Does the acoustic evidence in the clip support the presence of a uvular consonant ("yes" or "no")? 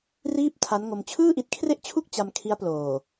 no